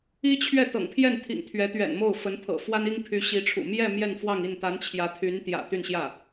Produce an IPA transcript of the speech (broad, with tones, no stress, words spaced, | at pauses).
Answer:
i˥t͡ɕʰɥɛ˥˩ t̪ɤ̰˨˩ŋpʰjɛ˥˩nt̪ʰḭ˨˩ŋ t̪ʰɥɛ˧˥t̪ɥɛ̰˨˩nmo˥˩ʊ̯fə˧˥n pʰɤ̰˨˩fwa˥ni˥ŋpʰy˧˥ ɕi˧˥ʈ͡ʂʰṵ˨˩ mjɛ˥˧ mjɛ˥˧nfwɑ˥˧ŋi˥˩n t̪a˧˥nt͡ɕʰjä˧˥ t̪ʰy˧˥nt̪jä̰˨˩ t̪y˥˧nɕjä˥˩